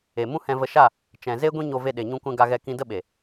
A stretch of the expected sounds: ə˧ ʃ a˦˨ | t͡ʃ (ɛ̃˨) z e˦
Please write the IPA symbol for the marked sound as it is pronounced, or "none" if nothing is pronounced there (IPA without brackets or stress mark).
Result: ɛ̃˨